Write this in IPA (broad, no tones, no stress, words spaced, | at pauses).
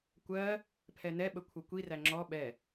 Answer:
kʷɜ | pʰɛnɛɓə kʷʰʌkʷiræ ŋ͡ǁɔ ɓɛ